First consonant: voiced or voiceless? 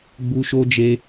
voiced